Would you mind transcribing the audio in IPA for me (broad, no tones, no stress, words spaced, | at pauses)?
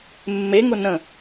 mːeŋʊ nə̃